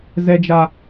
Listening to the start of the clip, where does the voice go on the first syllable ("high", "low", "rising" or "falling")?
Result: high